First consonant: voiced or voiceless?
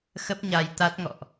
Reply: voiceless